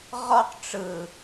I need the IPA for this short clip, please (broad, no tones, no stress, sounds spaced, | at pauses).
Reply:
ʁ ɔ q ʈ͡ʂ ɯ